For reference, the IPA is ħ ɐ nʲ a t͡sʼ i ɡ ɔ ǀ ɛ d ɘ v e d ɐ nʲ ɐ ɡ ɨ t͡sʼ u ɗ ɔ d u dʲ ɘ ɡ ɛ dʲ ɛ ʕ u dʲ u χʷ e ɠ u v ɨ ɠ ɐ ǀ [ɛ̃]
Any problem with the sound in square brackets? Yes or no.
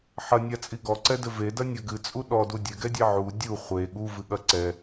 yes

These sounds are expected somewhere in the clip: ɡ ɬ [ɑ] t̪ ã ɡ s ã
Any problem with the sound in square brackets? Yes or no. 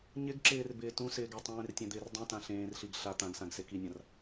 yes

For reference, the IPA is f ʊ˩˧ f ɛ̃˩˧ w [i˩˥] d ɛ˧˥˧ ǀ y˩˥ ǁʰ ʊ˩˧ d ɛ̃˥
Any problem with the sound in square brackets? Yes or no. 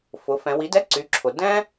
no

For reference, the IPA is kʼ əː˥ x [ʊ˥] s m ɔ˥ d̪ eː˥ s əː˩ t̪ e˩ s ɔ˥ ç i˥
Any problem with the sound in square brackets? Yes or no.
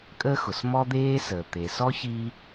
yes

